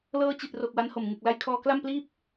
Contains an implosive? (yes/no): no